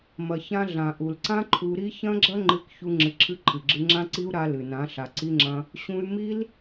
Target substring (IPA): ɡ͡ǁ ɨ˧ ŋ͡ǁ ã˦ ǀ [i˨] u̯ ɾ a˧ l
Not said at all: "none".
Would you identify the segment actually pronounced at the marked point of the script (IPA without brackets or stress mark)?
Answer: i˦